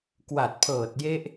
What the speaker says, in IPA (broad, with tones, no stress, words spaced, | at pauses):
kwa˨˩t̚pʰɤː˨˩t̚ je˦˥ʔ